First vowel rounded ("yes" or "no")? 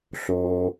yes